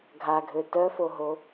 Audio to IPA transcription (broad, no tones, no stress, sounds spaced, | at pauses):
ɡʱ a ɡʱ ø t œ f o ɦ o